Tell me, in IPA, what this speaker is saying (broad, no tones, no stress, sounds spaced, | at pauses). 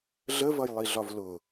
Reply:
ɮ ə v ʌ j lˠ i ɮ ɒ v l ʊ